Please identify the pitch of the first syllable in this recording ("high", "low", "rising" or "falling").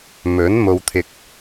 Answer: rising